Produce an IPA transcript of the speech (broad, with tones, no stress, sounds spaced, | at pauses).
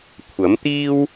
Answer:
kʷʰ ɐ˨˥ m t̪ iː˥ w